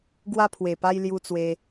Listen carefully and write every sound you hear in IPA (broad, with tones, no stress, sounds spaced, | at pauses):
ɡ w a˧ pʰ w e˨˩ p a˧ j l j u˧ t͡s w e˧